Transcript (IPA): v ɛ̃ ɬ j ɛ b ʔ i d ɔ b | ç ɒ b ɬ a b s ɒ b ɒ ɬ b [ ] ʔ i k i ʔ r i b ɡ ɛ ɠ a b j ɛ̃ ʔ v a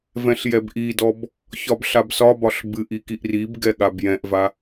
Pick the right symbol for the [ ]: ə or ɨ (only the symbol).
ɨ